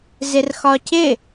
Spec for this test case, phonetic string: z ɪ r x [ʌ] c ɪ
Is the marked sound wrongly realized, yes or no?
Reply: yes